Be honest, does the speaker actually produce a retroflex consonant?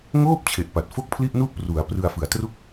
no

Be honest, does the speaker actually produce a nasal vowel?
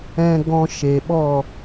yes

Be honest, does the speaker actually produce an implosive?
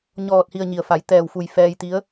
no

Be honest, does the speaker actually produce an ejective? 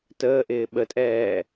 yes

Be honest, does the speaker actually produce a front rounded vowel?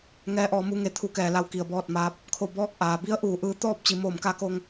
no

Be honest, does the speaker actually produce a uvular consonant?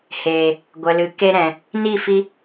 no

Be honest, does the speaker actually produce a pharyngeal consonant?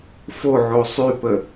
yes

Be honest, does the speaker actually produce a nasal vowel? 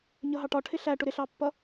no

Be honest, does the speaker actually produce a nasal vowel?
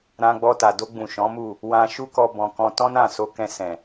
yes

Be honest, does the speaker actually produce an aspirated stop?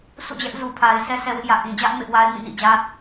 yes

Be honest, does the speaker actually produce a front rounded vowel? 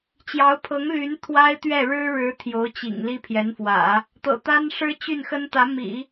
yes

